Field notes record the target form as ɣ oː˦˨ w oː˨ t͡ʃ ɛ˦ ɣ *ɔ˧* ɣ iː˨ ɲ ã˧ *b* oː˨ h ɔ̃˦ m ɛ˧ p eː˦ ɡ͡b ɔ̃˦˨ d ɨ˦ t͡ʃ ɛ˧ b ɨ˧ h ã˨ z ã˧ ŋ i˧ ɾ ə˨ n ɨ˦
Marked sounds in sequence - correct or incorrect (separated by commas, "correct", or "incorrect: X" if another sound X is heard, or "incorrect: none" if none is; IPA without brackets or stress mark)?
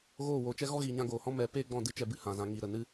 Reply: incorrect: ɔ˦, incorrect: ɡ